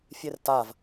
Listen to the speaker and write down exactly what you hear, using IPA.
fʲertav

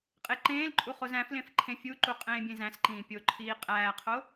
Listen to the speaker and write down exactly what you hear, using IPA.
qʼeǃẽːlǃʼu χozæ̃flẽf ǃʰẽfʲuǃu qʼẽːbʲẽzæ̃sǃĩː pʲoǃʰiː qʼæːqʰo

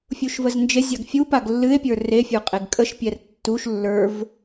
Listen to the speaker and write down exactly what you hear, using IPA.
fʲuʃvəznd͡ʒezʲaɡ fʲu paɡlːɨe̯pʲə˞ refʲə˞ qʼeɡkʼəʃpʲɛr tːuʃ lːə˞v

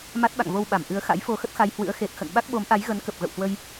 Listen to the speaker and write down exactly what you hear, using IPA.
ma˦˥t̚ɓa̰˧˨ŋvo˧wɓa˧˩m ʔɨ˨˦ə̯xa̰˧˥j fo˧xə˦˥t̚xa˧j hwɨ̰˧˥ə̯xe˨˩t̚xə̰˧˨n ɓa˦˥k̚ɓo˨˦mʔa˨˦j ɣə˨˦nkə˨˩p̚ɣə̰˧˨whwə˧j

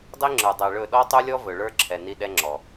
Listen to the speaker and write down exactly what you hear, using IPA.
dˤi˦ŋ͡ǁə˞˨dˤɛ˨ɭɵ˦˨ ɗɔ˦tˤu˦lʲɔ˦ vɵ˨ɭə˞˦ǁʰɛ˨ ni˦ɗɛ˦ŋ͡ǁɔ˨

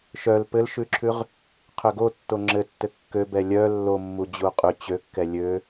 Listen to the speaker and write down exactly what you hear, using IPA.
ʃœl pɘlʃʉǁʰʉʁ | qʰøɡo tːoŋ͡ǁɘtːɘ kːøbɛ lʲœ lːomːu d͡ʑuqʼʉ t͡ɕøkːɛ lʲø

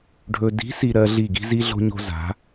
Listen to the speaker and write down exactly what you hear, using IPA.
ɖʱɵ˨di̤˨˦si˨ ɾɜ˦ɮi˦˨ ɡi̤˦zi˦ɮo̤˦ɲo̤˦ za̤˨˦

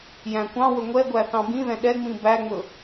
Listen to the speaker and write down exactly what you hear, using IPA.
jæ̃kʷɑ̃wɵ ŋʷɛɡʷæ θɑ̃bĩðɛ̃ ɗɛŋ͡mĩ bæŋ͡mɵ

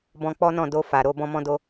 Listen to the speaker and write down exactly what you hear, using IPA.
bɔ̃˧ k͡pɔ˦nɔ̃˦˨ do˧ fa˨ɾo˧ bɔ̃˧mɔ̃˧do˧

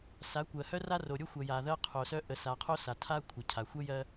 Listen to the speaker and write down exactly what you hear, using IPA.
sa˨˦kʷɜ˨ hœ˦ra˦ro˨ ɾʲo˦xʷɜ˨ ja˨ðɜ˦qʰo˨sœ˦ ʔə˨sa˨qʰo˦ sa˨tʰa˦ kʷʰə˨cʰa˨ xʷə˦jɜ˦

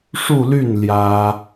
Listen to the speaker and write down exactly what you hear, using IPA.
ʂu˥˧ly˥˩n ljä˥

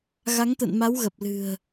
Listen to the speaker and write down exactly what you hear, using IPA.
ɣa˨˦ŋt̪ə̰˧˨nma˨˦w ɣə˨˩p̚lɨ̤˨˩ə̯

